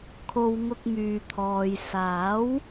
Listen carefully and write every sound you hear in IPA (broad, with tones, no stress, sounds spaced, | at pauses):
kʰ o˨ w ŋ ʊ˧ k̚ m yː˨ t̪ʰ ɔː˨ j s aː˨˥ w